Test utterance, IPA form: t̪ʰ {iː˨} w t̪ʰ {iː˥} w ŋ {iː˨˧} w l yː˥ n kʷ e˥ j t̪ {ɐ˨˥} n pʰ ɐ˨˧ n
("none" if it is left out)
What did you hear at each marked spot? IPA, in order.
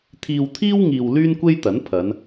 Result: iː˧, iː˥, iː˨, ɐ˨˥

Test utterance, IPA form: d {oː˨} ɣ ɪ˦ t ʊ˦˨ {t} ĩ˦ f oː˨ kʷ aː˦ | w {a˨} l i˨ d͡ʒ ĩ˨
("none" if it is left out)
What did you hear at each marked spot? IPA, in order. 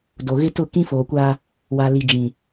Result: o˨, k, a˨

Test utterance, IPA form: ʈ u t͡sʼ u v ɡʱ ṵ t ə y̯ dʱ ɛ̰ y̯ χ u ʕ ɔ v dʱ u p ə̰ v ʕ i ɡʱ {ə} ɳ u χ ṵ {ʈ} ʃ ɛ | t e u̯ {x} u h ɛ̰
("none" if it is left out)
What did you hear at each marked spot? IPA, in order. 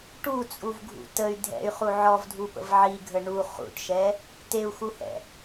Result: ə, ʈ, x

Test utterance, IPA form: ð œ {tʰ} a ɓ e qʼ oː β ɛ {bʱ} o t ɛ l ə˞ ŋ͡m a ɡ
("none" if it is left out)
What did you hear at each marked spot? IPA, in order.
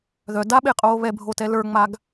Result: d, bʱ

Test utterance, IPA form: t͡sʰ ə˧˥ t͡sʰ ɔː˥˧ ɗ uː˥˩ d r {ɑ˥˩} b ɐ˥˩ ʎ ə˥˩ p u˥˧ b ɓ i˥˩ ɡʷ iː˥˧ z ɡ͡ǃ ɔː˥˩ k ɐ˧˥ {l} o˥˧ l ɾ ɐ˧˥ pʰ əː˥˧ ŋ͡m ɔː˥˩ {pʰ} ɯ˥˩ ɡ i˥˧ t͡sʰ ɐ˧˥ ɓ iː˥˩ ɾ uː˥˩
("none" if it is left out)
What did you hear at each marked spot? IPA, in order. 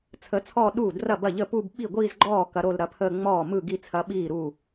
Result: ɐ˥˩, ɾ, m

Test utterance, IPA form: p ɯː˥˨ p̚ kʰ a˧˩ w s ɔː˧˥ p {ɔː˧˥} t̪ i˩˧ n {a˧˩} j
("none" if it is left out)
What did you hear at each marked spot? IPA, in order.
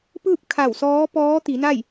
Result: ɔː˧˥, a˥˨

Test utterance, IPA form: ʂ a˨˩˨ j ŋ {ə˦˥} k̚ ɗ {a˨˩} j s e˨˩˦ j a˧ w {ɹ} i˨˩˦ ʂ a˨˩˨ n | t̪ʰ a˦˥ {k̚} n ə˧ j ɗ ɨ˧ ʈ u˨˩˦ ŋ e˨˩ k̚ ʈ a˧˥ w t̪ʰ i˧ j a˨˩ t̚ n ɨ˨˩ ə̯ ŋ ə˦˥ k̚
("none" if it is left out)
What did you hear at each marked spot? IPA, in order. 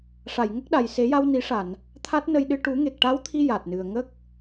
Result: ə˦˥, a˨˩, n, t̚

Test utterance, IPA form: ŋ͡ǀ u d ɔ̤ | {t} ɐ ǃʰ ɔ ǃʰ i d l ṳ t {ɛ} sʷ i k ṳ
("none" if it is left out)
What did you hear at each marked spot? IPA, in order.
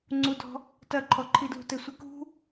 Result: t, ɘ

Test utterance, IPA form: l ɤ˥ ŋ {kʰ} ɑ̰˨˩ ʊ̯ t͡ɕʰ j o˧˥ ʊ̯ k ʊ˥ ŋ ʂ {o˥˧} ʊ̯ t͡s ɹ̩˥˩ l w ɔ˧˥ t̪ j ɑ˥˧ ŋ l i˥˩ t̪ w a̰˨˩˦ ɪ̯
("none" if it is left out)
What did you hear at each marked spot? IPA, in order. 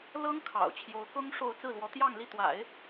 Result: kʰ, o˥˧

